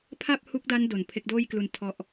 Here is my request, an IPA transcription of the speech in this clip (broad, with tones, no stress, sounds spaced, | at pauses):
pʰ a˥˩ p̚ h u˦˥ k̚ d a˦˥ n d o˨˩ n pʰ e˦˥ k̚ d oː˥˩ j k l u˧ n tʰ ɔ˦˥ ʔ